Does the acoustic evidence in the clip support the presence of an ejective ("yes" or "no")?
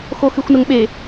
no